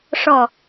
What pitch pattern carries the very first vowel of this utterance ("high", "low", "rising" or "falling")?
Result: low